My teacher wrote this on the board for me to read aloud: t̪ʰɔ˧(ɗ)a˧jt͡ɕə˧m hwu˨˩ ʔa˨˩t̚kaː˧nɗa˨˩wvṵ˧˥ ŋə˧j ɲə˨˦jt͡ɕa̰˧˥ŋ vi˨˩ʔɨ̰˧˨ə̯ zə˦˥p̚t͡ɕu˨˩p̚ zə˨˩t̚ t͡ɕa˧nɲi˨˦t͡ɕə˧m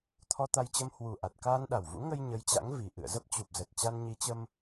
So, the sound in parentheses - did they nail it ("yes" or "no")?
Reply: no